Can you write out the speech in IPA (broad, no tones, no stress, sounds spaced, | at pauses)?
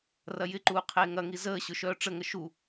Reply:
r ɐ j ɪ ǃ uː qʰ eː ŋ ɐ ŋ i z əː ɕ ʊ ʃ œː ʈ͡ʂ ə ŋ ə ʃ u